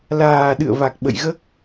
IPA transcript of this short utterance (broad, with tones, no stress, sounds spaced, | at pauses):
l aː˨˩ ɗ ɨ̰˧˨ ə̯ v a˨˩ k̚ ɓ ə̰˧˨ j ɣ əː˦˥ k̚